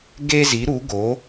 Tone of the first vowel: high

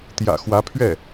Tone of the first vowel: low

